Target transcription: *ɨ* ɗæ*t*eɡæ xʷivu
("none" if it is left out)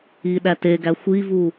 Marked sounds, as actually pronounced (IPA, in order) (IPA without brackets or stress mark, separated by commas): i, t